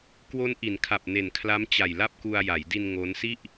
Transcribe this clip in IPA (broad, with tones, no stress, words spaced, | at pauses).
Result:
kwo˦˥n ʔi˩˦nkʰa˨˩p̚ ne˨˩nkʰla˦˥m t͡ɕa˨˩jla˥˩p̚ku˧a̯ ja˩˦jdi˧n ŋo˦˥nsi˥˩ʔ